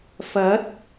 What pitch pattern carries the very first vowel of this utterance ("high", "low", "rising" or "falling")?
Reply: rising